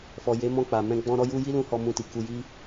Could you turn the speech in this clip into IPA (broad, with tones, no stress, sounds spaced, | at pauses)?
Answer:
f ɔ˨ j e˨˦ m ɔ̃˧ k͡p a˨ m ɛ̃˧ ɡ͡b ɔ̃˦ ɾ ɔ˦ j u˦ j i˦ l ũ˧ h ɔ˦ m ũ˦ t i˧ k u˧ j i˦